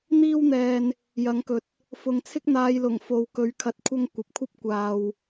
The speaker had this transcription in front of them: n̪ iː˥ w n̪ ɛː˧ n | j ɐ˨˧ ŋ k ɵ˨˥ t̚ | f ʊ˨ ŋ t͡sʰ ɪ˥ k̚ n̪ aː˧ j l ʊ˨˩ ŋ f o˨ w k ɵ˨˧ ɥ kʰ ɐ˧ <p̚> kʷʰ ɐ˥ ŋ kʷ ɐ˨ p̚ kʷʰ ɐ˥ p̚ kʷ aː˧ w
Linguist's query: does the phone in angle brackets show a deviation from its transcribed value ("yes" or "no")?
yes